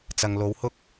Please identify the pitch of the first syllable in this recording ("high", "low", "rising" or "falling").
low